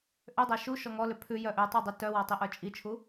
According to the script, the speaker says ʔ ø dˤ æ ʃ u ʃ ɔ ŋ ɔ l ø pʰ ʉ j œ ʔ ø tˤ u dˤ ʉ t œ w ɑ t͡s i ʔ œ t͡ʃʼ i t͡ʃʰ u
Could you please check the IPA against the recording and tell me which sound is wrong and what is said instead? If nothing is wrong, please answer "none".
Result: t͡s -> tˤ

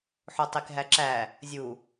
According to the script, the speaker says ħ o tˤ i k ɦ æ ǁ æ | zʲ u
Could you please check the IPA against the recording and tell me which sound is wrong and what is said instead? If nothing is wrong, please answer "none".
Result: none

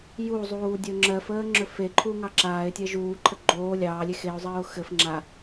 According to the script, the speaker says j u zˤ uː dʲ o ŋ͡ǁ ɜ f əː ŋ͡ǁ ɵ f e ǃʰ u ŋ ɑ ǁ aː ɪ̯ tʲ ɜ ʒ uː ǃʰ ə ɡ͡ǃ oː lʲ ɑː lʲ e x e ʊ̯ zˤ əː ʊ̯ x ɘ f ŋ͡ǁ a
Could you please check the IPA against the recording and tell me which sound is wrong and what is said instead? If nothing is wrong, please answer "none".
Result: none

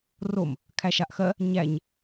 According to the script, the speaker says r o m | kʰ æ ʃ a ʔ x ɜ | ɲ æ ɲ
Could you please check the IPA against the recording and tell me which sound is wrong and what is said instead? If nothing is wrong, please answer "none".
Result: none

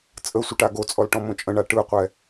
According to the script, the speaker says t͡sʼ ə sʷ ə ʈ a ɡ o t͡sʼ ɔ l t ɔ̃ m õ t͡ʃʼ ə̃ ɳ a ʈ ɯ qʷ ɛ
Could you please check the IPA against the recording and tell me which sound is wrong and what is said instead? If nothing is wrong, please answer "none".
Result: t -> ʈ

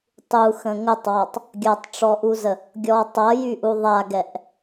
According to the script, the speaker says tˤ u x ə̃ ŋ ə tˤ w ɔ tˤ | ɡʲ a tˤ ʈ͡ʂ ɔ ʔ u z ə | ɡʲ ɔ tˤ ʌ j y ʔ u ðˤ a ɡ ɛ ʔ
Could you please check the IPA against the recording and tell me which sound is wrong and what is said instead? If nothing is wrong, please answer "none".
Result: none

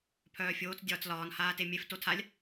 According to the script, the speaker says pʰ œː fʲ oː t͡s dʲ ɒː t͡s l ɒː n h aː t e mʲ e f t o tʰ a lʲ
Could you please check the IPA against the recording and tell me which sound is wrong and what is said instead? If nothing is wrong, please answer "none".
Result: none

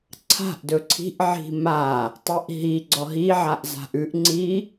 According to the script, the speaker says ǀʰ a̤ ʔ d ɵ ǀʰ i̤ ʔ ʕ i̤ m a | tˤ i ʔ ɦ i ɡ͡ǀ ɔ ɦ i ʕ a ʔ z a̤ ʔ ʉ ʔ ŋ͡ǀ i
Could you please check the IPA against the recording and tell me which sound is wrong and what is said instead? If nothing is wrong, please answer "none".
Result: none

